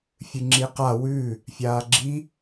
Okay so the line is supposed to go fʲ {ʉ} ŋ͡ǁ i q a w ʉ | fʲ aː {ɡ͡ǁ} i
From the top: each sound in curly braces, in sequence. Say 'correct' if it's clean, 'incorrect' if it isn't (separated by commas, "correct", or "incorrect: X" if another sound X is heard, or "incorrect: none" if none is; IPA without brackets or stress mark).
incorrect: ɨ, correct